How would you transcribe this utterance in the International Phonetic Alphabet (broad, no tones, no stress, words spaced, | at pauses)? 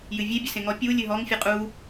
jɨvʲe bʲəsẽŋɔ pʲu lʲɨɦɔŋ fʲɨqʼu